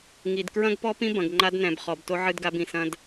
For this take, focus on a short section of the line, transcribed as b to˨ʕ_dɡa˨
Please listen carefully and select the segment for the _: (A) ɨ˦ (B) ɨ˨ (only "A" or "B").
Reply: B